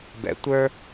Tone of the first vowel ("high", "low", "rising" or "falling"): low